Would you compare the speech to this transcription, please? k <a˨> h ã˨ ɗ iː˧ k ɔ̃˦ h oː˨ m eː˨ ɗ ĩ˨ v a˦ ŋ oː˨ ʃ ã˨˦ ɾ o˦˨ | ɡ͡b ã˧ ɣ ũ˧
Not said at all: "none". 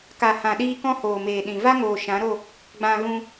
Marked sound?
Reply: a˨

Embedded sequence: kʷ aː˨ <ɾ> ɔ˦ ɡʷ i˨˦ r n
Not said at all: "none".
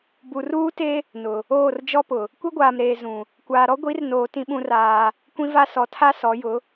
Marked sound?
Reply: ɾ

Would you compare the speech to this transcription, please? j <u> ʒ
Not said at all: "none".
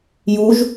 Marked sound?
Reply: u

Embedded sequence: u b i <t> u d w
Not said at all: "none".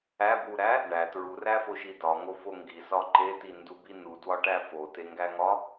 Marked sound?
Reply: n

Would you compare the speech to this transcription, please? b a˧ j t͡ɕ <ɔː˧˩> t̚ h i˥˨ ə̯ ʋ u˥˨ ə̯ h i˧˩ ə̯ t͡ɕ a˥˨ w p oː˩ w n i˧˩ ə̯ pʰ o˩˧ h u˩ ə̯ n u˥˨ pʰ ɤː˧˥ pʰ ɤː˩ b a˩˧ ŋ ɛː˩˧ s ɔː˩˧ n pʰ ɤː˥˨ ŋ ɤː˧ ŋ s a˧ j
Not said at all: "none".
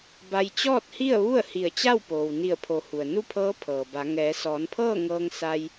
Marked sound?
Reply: ɔː˥˨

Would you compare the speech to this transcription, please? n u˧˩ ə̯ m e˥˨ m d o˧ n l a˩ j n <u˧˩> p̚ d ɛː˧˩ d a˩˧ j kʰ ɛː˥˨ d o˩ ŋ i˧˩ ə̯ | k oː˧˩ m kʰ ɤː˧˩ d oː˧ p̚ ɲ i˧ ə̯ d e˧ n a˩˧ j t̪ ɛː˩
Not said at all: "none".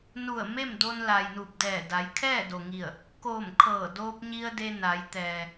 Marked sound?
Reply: u˧˩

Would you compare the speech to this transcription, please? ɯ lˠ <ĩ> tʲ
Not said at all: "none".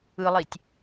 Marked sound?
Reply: i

